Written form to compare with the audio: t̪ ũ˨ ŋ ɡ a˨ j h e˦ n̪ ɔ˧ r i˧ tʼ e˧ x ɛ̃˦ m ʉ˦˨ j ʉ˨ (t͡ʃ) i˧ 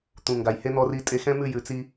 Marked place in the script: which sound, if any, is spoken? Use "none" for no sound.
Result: t͡s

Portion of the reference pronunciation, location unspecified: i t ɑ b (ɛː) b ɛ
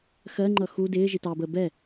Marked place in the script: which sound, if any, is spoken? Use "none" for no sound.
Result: əː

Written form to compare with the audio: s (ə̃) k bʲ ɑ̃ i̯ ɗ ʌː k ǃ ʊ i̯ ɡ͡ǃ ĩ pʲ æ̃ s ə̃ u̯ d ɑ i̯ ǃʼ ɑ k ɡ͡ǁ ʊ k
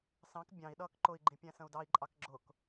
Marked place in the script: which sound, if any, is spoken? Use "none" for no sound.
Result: ɑ̃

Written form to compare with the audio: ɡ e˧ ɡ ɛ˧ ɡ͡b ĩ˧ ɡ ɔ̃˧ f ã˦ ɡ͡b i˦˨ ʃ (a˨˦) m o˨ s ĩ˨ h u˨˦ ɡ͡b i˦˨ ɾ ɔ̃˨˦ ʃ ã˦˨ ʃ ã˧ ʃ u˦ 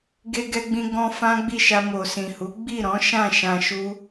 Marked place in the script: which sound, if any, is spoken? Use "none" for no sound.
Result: a˧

